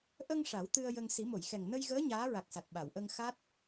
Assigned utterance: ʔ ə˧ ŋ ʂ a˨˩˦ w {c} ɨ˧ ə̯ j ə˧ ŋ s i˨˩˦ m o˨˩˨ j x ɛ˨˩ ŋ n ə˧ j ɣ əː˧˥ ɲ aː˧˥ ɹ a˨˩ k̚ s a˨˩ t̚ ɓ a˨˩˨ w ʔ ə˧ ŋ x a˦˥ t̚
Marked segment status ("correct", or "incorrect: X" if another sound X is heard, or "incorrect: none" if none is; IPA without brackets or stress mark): incorrect: t̪